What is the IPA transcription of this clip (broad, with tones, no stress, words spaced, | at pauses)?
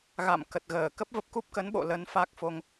ɣa̰˧˨mkə˨˩t̚ɣəː˧˩ kə˦˥p̚və˦˥p̚ku˦˥p̚kə˨˦n ɓo̰˧˨lə˨˦nfa˦˥k̚fo˧ŋ